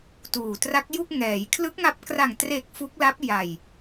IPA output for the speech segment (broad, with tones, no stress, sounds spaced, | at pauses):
t uː˨˩ t r a˦˥ k̚ j u˥˩ k̚ ŋ ɛː˩˦ j kʰ l ɯ˦˥ k̚ ŋ a˦˥ p̚ k r a˨˩ ŋ t r e˨˩ k̚ f u˦˥ k̚ l a˦˥ p̚ j a˨˩ j